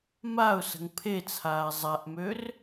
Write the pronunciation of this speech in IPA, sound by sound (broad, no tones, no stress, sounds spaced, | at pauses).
m a ʊ̯ s ə̤ ŋ pʰ e t͡sʰ aː zˤ a ʔ m ø r